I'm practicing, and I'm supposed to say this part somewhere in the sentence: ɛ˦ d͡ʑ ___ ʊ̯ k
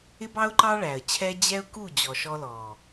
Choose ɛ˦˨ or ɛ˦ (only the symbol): ɛ˦